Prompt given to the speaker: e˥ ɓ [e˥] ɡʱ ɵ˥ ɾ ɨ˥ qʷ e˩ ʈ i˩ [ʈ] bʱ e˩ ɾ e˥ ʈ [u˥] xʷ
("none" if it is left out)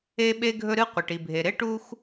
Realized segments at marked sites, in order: e˥, none, u˥

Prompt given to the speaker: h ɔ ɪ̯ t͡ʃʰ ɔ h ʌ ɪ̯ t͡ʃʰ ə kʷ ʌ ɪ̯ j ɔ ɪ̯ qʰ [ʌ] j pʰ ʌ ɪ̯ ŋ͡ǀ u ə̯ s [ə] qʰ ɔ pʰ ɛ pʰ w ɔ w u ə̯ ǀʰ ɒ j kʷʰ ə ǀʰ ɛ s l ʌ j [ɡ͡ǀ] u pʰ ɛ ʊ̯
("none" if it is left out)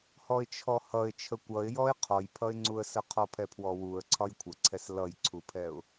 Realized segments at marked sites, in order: ɔ, ə, ǀʰ

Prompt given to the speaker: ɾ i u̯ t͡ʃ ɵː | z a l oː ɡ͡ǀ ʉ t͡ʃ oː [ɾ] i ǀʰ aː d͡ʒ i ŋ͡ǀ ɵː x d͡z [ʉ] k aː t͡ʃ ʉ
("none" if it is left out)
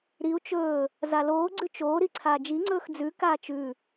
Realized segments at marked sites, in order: ɾ, ʉ

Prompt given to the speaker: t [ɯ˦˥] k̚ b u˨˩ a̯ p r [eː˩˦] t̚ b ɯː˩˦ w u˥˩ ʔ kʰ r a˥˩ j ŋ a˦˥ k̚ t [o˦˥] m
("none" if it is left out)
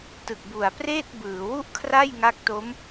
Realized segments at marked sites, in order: ɯ˨˩, eː˥˩, o˦˥

